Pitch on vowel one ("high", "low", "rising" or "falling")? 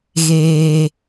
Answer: low